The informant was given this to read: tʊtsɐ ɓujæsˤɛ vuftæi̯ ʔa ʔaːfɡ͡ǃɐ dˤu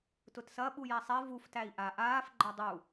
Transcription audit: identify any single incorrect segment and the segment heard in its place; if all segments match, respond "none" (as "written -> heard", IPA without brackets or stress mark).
none